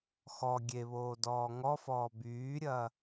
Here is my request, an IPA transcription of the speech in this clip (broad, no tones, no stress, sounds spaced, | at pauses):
x ɔ ɡʲ e β oː d ɔː ŋ ɔ f ɔː b yː ɾʲ ɐː